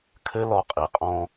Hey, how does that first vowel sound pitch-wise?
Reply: high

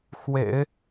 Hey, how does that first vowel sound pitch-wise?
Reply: low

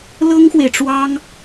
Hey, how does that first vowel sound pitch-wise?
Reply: high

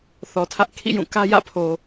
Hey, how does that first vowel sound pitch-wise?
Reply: low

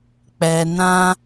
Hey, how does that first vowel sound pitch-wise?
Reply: low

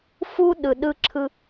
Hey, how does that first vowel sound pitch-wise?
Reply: high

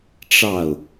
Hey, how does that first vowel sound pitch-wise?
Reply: falling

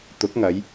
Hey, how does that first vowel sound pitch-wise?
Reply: rising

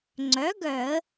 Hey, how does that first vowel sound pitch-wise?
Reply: rising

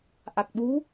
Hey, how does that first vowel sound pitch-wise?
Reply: low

